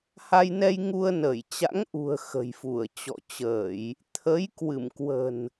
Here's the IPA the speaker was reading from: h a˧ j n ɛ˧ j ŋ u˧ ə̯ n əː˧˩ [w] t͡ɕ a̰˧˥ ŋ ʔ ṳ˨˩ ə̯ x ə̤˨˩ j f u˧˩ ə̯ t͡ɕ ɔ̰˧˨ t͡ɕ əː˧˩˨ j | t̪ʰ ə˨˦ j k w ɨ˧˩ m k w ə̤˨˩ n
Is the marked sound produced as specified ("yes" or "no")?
no